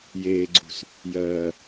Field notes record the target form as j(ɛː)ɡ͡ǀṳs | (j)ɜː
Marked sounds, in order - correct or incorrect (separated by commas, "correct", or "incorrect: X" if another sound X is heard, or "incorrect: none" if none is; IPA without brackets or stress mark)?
incorrect: eː, correct